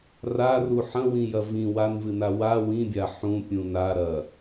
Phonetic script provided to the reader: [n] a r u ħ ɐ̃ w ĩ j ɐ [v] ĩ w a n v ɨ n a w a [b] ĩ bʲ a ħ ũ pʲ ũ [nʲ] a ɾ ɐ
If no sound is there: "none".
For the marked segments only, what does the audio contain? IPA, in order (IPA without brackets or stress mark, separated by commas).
r, v, w, n